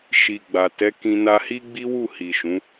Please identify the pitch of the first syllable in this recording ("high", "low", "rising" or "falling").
low